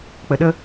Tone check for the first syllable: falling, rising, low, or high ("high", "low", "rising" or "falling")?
low